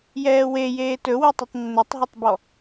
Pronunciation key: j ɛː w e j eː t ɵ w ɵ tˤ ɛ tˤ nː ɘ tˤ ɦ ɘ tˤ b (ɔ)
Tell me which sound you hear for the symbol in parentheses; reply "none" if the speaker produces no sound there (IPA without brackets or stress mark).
ɔ